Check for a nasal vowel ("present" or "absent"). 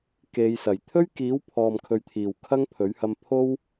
absent